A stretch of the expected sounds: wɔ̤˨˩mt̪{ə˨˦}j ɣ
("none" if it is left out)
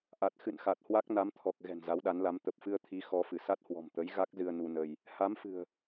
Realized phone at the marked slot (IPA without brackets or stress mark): ə˨˦